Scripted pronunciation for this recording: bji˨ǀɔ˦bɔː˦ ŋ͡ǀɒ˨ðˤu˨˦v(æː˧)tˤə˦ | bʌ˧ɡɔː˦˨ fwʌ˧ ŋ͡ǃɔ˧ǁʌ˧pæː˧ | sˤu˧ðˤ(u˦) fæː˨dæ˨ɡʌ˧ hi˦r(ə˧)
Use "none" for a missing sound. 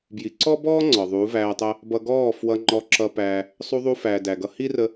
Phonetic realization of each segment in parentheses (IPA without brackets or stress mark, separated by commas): æː˧, u˧, ə˧